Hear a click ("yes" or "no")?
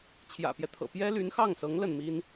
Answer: no